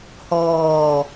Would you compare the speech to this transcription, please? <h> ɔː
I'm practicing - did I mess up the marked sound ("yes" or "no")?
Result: no